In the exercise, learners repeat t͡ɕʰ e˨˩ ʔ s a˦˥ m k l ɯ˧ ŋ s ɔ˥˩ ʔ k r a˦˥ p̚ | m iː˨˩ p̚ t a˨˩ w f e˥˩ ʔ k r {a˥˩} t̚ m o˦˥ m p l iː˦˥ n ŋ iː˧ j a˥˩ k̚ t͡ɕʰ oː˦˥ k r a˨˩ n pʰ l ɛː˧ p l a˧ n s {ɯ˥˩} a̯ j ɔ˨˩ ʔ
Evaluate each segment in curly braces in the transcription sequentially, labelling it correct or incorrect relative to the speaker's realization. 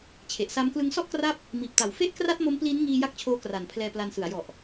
correct, incorrect: ɯ˩˦

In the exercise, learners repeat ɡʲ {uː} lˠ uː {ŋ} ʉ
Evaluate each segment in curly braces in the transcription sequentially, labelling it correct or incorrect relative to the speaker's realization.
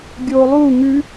incorrect: oː, correct

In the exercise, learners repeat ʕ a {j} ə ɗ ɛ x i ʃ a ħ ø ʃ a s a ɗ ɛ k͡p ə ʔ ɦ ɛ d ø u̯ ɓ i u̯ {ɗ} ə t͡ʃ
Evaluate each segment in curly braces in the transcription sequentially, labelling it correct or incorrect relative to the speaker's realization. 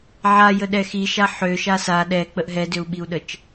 correct, correct

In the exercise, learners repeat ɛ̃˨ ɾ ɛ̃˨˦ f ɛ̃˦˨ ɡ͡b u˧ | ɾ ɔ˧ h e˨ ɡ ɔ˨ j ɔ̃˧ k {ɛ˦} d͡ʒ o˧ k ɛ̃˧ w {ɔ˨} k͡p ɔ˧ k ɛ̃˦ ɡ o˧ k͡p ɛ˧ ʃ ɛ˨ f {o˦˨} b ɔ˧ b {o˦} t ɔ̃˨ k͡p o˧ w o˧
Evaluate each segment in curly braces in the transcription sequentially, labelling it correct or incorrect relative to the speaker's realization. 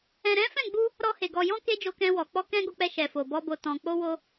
incorrect: e˦, correct, incorrect: o˨, incorrect: o˨

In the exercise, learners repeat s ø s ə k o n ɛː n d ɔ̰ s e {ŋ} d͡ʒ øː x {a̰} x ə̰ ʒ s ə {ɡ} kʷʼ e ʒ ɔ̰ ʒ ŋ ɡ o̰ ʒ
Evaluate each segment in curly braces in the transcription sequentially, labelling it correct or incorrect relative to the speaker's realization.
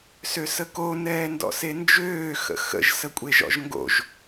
incorrect: n, incorrect: ə̰, incorrect: none

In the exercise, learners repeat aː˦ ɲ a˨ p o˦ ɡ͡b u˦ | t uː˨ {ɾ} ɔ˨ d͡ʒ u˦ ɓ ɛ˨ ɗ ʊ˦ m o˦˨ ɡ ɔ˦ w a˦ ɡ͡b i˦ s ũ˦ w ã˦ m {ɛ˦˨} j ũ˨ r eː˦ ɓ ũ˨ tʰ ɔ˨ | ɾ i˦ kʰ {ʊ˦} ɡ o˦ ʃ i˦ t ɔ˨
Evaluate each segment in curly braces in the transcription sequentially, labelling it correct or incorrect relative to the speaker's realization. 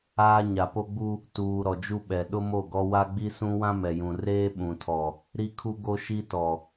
correct, incorrect: ɛ˨, incorrect: u˦

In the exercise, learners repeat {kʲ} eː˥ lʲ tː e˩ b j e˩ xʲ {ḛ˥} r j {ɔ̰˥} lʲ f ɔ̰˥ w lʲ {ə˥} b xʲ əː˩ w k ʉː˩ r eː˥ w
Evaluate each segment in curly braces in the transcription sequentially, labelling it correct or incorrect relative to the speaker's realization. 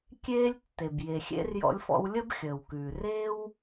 correct, correct, correct, correct

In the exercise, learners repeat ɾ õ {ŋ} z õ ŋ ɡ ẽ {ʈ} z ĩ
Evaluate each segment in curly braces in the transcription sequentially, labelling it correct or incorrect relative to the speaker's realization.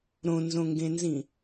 incorrect: n, incorrect: n

